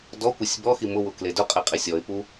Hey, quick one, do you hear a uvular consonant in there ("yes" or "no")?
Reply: yes